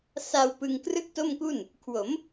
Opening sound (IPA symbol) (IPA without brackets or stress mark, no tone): s